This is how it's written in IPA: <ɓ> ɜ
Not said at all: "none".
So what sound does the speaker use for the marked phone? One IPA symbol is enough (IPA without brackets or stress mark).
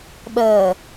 ɓ